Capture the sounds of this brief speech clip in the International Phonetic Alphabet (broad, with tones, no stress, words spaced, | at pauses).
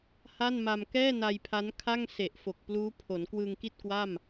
ha˥˩nma˧m kɛː˥˩ na˧jpʰa˦˥nkʰa˥˩ŋ se˨˩ʔfo˨˩k̚pluː˦˥ pʰo˩˦n kwɯː˧ŋki˥˩t̚kwa˥˩m